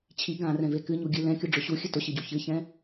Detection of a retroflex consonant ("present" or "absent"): present